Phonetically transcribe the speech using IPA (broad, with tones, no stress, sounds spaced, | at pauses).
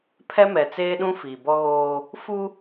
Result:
pʰ ɛ˦ m ɛ˨ t͡s eː˦ ɗ ũ˦ f iː˨ b ɔ˦ ɣ oː˦ | f u˦